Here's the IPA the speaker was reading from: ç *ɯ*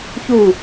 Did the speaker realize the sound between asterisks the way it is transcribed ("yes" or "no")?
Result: no